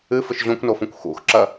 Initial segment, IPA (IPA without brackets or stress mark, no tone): ɨ